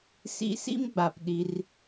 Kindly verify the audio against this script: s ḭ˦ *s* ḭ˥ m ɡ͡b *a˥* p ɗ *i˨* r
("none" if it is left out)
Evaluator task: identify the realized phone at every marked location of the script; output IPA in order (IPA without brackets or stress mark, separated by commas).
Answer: s, a˨, i˨